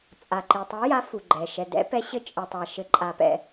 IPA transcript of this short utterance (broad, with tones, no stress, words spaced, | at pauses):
t͡sʼa˩ǃi˩ tˤi˨˦ja˨˦fu˩ɡ͡ǃɛ˩ ʃɛ˩dɛ̰˨˦pɛ˨˦ ɕɘ˨˦t͡ʃʼɘ˩tˤa˩ ʃɘ˩ǃʼa˩pɛ̰˩